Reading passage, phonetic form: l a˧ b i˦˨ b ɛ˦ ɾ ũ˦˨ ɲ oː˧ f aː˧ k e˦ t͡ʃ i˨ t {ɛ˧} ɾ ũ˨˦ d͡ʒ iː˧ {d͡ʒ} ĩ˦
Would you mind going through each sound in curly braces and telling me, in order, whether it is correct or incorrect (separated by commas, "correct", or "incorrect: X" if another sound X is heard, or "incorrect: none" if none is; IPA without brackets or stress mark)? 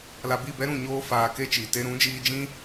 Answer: incorrect: e˧, correct